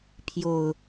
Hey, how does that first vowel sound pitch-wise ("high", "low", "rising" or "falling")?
low